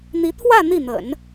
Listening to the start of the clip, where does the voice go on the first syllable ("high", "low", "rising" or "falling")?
rising